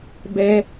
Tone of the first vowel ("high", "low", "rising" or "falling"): high